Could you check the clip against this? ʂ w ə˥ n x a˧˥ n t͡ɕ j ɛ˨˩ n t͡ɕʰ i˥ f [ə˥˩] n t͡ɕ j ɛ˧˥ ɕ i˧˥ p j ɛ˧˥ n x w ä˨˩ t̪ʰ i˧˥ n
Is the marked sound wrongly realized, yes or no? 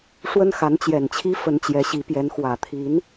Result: yes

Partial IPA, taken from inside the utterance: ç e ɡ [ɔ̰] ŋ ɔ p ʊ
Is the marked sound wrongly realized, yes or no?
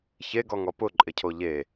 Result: yes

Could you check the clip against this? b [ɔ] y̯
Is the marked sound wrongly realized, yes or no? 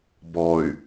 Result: no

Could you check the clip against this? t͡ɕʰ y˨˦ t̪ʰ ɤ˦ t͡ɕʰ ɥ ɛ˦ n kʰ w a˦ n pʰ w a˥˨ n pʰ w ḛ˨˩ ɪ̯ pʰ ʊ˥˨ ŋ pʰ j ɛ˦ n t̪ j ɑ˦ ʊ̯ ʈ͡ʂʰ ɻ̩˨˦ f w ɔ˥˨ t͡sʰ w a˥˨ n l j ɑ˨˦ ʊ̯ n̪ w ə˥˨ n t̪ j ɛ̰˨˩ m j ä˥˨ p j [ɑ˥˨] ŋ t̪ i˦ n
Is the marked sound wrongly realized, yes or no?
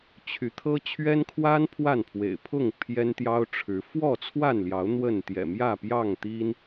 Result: no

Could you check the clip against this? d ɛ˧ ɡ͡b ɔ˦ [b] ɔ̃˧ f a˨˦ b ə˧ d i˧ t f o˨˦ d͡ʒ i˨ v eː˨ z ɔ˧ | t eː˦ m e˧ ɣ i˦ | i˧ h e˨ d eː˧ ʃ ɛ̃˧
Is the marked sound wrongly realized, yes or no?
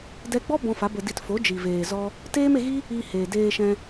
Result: no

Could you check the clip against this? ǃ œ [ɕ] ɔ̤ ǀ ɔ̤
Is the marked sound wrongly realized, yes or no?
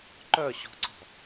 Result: no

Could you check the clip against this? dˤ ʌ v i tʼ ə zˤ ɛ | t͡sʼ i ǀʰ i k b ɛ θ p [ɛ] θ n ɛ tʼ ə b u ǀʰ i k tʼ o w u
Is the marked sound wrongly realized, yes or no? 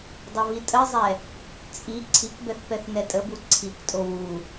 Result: no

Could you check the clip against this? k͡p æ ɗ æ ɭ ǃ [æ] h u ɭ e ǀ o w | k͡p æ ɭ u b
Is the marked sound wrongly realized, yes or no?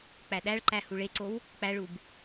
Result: no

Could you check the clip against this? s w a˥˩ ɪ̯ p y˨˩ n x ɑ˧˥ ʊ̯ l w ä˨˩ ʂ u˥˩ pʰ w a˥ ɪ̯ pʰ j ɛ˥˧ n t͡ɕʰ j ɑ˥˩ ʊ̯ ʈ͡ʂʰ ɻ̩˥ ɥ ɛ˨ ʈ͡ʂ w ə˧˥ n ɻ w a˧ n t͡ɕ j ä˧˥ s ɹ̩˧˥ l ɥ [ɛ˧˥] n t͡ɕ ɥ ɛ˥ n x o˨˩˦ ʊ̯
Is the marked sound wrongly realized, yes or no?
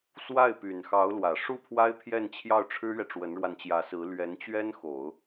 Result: no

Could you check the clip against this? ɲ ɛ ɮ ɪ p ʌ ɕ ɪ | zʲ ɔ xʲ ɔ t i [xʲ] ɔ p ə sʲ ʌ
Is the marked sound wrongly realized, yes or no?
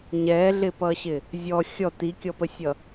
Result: yes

